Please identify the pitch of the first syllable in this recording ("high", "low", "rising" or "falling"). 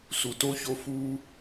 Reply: low